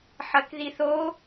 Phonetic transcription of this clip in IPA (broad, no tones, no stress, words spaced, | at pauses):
ħɐkðiθo